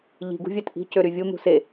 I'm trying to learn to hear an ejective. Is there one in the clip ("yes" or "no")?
no